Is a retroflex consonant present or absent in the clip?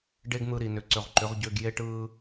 present